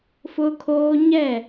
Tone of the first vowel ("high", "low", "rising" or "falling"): high